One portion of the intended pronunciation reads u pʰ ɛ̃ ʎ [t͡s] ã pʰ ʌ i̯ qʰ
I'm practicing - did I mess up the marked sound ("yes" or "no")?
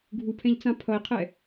no